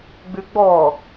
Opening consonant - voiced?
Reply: yes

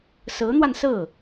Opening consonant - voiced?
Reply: no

